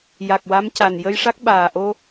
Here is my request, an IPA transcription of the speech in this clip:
ja˨˩k̚wa˧˥mca˨˩n jə˧jʂa˦˥k̚ɓaː˨˩ʔo˧

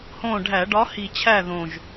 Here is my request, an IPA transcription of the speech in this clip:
hõ˦˨ɖʱæ˧˩˧ ɖɒ˨˦hi˨˩t͡ɕʰæ˦˨ ðõ˨˩ʒ

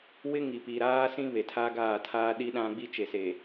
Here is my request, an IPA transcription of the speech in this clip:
wɪ˦ŋi˨pi˨ ɾaː˦sĩ˦ βe˨tʰa˦ɡaː˦˨tʰaː˦ ɗi˦ɗã˦ ɡ͡bi˦t͡ʃe˨se˨

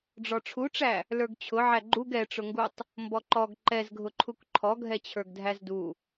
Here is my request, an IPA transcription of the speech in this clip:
ɖ͡ʐɔʈ͡ʂʰuʈ͡ʂæ | lə˞ɡt͡ɕʰʊ ʕæɡ͡ǃuɡ ɛʈ͡ʂʊŋɡutˤ | mbɔǃɔɡ ǃɛzɡʱʊǃʰuk ǃʰɔɡʱɛt͡ɕʰə˞ɡ dʱæzdu

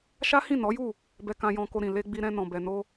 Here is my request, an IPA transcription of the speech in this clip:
ʃa˦hĩ˦˨nɔ˨˦ju˦˨ | bɛ˧kã˧jɔ̃˧ko˧ ɾĩ˨le˧ɡ͡bi˧ ɾɛ̃˧ nɔ̃˨ bɛ˨ no˧

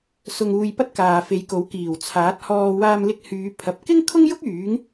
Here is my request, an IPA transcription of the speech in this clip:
sʊ˧ŋuː˧jpɐ˥t̚ kaː˨fe˨˧jko˨˥w kiː˨˩wt͡sʰaː˨˥t̚hɔː˧ waː˧mlɪ˧k̚hyː˨˧ pʰɐ˨p̚ kɪ˥ŋkʰʊ˥ŋjʊ˥k̚ yː˨˥ŋ

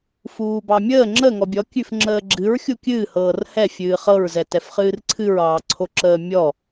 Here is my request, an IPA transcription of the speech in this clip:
fuːbɑmʲəː ŋ͡ǁə ŋɔbʲɔ kʲʉfŋ͡ǁəːɡ͡ǁɨɹ xʲukʲɨː hɤːrhɛ fʲɨːχɤɹ zɛtɛfχɨːrǀʰɨɹ ɑːǀʰoǁəːmʲɔ

